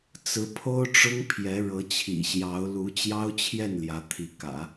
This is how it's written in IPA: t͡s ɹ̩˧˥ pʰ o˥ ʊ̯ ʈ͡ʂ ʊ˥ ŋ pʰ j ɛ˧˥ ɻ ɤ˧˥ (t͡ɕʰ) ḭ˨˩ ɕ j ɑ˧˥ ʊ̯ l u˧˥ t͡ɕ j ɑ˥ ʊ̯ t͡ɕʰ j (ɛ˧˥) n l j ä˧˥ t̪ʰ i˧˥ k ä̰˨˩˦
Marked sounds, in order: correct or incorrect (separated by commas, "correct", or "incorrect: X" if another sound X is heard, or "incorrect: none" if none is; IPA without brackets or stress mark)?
correct, incorrect: ɛ˥˩